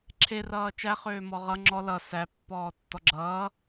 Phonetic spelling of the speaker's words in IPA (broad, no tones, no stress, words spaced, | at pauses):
ǁʰe rʌːt͡ʃæ χøːmɔʁʌ ŋ͡ǁɔ lʌ sæ pːɔːtːɔɡ͡ǁʌː